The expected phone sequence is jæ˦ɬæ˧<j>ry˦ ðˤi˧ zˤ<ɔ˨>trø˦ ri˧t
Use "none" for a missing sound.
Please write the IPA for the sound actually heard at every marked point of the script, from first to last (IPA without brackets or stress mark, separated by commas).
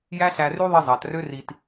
none, ɑ˨